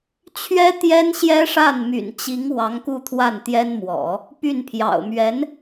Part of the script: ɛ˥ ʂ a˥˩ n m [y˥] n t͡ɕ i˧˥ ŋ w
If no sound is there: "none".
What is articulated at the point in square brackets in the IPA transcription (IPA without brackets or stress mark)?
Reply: y̰˨˩